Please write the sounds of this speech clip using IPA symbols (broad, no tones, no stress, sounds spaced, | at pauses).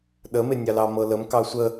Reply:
ɗ ə m e nʲ ɑ l ɑ m ɤ l ə m k ɑ sʷ ə